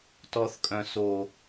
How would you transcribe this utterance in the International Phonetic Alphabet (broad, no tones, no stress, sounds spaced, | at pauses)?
t ɔ θ kʼ œ̃ s o